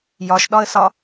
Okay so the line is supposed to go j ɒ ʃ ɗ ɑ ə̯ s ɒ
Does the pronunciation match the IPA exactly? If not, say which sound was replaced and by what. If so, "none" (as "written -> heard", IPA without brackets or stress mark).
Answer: ɑ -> ɒ